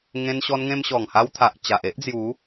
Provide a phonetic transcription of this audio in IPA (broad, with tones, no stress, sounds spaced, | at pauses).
ŋ ẽ˧ n ɕ ɔ˧ n ŋ ẽ˧ m ɕ ɔ˨˩ ŋ h a˧ w t̪ʰ a˨ ʔ t͡ɕ a˨ ʔ e˦ ʔ d͡z j u˨˦